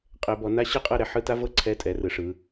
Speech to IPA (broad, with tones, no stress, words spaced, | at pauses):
qʼɛ˨˦bɔ˨˦na˥ ɕɯ˥qʼɤ˥˧ ɾɛ˨˦ħɯ˧˥˧ta˥vɤ˥˧ ǀʰɛ˥˧tʼɛ˨˦rɯ˨˦ʂɯ˨˦